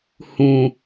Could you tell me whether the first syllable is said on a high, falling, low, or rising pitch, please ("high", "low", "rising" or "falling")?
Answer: low